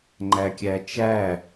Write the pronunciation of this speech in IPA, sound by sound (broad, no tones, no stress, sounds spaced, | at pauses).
ŋ͡ǃ æ kʲ æ t͡ʃ æ